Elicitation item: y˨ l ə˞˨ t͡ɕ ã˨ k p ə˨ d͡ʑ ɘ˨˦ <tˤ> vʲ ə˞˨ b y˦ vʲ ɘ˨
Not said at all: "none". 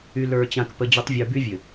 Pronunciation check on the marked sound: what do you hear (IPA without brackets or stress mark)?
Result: tˤ